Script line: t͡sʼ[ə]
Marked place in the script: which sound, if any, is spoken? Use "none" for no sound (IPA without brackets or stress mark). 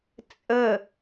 ə